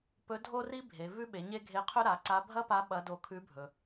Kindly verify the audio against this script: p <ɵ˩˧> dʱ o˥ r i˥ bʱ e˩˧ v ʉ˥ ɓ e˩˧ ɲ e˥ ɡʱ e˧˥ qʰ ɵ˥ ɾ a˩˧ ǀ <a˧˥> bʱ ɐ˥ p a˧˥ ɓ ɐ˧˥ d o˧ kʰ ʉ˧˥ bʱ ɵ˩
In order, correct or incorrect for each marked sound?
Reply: incorrect, correct

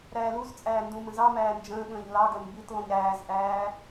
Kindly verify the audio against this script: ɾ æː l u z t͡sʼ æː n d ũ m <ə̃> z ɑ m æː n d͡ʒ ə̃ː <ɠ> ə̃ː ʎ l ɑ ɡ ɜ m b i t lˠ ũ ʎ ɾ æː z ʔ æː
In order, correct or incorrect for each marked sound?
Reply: correct, correct

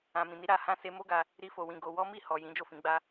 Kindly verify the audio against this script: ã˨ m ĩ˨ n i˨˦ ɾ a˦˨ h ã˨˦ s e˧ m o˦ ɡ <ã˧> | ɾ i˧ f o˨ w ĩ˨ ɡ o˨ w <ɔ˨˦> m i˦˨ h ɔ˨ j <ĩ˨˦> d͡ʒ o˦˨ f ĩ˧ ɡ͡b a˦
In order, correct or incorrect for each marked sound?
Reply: incorrect, correct, correct

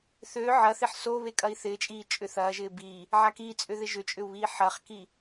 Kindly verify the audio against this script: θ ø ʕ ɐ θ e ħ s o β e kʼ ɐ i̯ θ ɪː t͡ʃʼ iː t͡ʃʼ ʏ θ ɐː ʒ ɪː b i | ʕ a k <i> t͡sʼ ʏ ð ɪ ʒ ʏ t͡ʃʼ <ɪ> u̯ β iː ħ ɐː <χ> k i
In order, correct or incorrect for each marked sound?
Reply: correct, incorrect, correct

